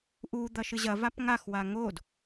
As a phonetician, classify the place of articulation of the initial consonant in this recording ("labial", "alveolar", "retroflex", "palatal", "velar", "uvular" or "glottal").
glottal